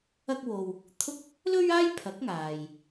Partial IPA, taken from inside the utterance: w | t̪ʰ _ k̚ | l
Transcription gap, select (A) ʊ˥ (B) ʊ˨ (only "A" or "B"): A